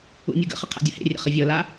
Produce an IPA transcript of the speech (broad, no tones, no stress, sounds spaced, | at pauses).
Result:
ṵ nʲ u ɡ ə̰ χ ə qʰ a̰ dʲ ʌ h ḛ rʲ ə̰ χ ə vʲ ɤ l a